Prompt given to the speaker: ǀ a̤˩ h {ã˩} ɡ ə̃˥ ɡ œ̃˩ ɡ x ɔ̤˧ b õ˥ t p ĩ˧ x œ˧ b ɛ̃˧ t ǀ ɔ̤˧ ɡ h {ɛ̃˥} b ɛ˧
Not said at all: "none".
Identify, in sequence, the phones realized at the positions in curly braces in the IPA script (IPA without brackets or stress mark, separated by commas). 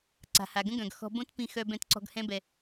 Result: a˩, ɛ̃˥